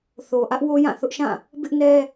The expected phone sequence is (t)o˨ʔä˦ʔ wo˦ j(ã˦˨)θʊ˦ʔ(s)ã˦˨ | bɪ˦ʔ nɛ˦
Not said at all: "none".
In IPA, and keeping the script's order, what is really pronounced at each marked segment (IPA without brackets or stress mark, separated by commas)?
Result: θ, ã˦˨, ʃ